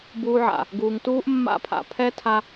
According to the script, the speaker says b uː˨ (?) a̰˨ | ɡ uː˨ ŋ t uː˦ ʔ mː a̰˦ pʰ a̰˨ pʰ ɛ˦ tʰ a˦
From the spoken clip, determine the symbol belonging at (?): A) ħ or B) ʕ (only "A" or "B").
B